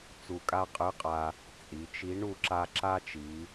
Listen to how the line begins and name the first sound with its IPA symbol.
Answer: t͡s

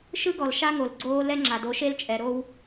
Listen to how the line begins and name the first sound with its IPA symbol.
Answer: ʃ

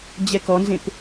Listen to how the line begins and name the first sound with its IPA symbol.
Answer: d͡ʑ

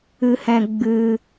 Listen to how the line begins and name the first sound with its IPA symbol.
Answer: ɨ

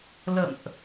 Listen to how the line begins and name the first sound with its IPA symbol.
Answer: l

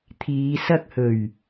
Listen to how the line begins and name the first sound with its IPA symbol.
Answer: t̪ʰ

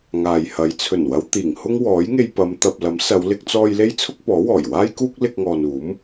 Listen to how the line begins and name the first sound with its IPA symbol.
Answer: ŋ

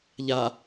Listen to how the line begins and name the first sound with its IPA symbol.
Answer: ʎ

